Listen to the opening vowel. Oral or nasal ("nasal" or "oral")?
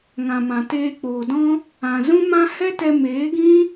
nasal